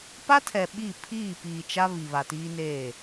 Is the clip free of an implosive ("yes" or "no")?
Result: no